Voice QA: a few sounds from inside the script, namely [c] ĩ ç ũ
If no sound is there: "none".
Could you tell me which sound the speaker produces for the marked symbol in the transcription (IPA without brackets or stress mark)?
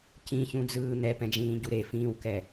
c